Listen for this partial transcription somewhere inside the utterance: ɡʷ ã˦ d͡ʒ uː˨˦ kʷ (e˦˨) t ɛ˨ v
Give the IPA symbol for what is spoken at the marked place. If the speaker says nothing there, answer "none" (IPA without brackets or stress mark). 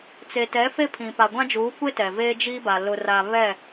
e˦